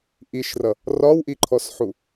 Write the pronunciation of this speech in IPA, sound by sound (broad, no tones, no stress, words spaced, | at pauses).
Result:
ʔiʃrʌ | rɒwʔiǃʰɔsħu